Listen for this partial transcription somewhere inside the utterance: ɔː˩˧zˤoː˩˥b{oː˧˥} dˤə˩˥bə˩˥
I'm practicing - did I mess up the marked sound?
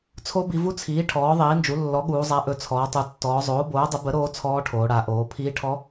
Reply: yes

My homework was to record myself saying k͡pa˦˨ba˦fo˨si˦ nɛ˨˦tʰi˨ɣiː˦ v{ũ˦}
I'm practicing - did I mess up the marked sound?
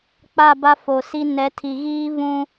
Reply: no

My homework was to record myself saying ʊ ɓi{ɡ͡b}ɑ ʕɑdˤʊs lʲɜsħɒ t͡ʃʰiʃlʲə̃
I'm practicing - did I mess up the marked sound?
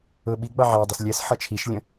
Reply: no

